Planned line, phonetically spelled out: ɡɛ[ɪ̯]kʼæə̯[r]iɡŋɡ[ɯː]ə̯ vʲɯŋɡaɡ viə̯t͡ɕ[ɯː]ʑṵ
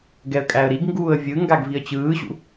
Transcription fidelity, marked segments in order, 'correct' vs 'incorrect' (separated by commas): incorrect, incorrect, incorrect, correct